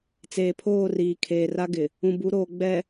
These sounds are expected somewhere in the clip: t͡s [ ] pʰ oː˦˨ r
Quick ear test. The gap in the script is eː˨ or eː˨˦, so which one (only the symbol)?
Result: eː˨